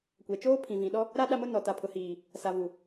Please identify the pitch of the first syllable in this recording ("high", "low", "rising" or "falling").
low